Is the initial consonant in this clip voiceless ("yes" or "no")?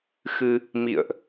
yes